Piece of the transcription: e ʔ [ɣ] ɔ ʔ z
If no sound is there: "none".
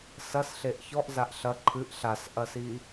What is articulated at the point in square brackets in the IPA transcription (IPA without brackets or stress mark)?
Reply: ç